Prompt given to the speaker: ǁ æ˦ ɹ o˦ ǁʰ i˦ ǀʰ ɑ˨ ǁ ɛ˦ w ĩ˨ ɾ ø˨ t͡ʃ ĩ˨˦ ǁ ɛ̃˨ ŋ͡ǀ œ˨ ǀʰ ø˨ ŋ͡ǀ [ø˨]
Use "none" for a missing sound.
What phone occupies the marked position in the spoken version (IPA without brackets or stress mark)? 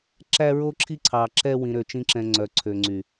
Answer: y˨